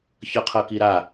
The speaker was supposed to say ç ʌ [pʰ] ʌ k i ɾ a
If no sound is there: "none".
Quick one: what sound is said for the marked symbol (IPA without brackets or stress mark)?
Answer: qʰ